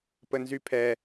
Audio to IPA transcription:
p ə n z y pʰ ɛ

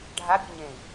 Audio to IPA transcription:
ɖʱ a bʲ u ɲ ẽ i̯

